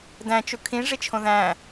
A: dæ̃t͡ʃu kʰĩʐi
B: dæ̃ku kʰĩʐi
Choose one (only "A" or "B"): A